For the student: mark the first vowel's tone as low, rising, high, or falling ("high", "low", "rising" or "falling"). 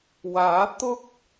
rising